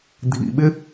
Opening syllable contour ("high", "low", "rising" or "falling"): low